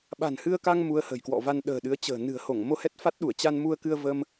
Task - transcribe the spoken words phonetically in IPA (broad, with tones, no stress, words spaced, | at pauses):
ɓa̤˨˩nhɨ˧ə̯ka˧ŋ mu˧ə̯hə̤˨˩jkwɔ̰˧˨va˧n ɗə̤ː˨˩ɗɨ˨˦ə̯t͡ɕə̤ː˨˩ nɨ̤˨˩ə̯ho˧˩ŋ mo˧hɛ˦˥t̚fa˦˥t̚ɗu˧˩ə̯ t͡ɕa˧nmu˧ə̯kɨ˧ə̯ və˧m